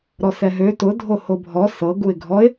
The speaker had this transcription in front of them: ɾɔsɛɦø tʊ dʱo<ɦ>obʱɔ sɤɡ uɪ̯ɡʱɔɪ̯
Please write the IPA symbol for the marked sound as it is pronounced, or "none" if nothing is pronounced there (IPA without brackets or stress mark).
h